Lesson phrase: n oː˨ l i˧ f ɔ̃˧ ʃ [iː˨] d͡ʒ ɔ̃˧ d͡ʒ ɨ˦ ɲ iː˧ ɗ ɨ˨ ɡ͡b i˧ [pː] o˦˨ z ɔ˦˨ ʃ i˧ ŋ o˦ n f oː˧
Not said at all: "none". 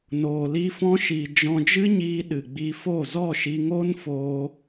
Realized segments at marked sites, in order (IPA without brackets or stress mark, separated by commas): i˨, f